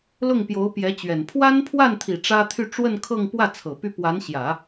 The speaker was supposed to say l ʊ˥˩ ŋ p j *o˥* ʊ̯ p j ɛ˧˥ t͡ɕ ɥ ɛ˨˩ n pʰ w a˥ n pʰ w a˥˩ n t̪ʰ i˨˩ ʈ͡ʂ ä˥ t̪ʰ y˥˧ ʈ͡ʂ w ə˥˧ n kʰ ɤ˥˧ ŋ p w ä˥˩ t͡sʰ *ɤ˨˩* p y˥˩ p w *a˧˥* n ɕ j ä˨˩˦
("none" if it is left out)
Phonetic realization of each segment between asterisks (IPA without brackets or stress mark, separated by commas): o˧˥, ɤ˨˩, a˧˥